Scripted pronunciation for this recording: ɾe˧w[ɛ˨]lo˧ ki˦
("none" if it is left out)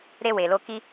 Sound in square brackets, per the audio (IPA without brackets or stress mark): e˨